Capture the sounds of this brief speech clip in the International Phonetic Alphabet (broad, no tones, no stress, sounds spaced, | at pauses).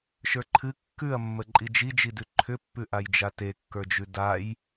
ʃ ə˞ ǃʰ ɨ kː ʉ ɐ̯ mː ə ǃʼ i d͡ʒ i d͡ʒ i d ʉ ǃʰ ʏ pː ʉ ʔ a j d͡ʒ a t e kː ə˞ d͡ʒ ʉ d a j